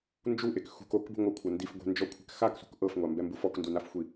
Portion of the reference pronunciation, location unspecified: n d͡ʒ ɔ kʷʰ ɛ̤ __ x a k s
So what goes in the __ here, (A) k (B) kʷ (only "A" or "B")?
A